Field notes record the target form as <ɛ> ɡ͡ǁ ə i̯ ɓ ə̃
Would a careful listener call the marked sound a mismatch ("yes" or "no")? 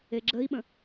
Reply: yes